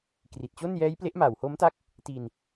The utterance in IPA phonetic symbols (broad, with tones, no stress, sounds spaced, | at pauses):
k r i˨˩ t̚ t͡ɕ o˥˩ n j ɛː˦˥ j p l e˦˥ ʔ m aː˨˩ w h o˦˥ m t a˥˩ k̚ | t i˧ n